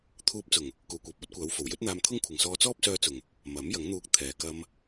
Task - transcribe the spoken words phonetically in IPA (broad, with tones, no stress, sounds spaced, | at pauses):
t̪ʰ uː˧ p̚ t͡s ʊ˨˩ ŋ | k uː˨˩ kʷ ɛː˨ p̚ ɔː˥ t̚ kʷ aː˨˥ w f o˨˩ w j ɵ˥ t̚ n̪ aː˧ m t̪ʰ ʊ˥ ŋ kʷʰ ɪ˨ ŋ s ɔː˧ t͡s ɔː˥ p̚ s œː˧ t͡s ʊ˨˩ ŋ | m ɐ˨˥ m j ɐ˨˥ ŋ n̪ uː˧ k̚ t̪ʰ ɛː˨ k ɐ˧ m